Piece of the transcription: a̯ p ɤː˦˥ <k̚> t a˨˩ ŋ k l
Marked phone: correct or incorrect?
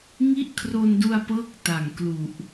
correct